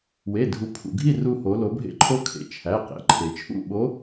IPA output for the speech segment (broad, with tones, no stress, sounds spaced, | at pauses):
w e˩˧˩ dʱ u˩˧ pʰ ṵ˩ ɡʱ i˥˨ r u˧ h o˩˧ l o˩˧ bʱ ḛ˧˥ ǃʰ o˧˥ kʰ ḛ˩ t͡ʃʰ æ˩˧˩ q ḛ˩˧˩ ǃʰ e˩ t͡ʃʰ ṵ˥˨ ɓ o˧˥